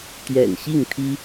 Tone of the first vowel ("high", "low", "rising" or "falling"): low